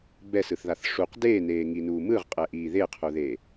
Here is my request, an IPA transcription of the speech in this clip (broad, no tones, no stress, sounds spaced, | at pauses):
b ɛ s ɯ θ ð a θ ʂ u q d eː n eː ŋ i n uː m ɯ ʁ qʼ ɛ ʔ iː ð e qʰ u ð eː